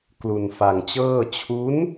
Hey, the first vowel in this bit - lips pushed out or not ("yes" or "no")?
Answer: yes